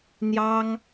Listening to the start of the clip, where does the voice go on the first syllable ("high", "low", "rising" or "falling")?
high